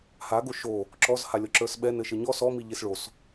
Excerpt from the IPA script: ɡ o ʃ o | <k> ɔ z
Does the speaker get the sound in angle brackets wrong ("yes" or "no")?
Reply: yes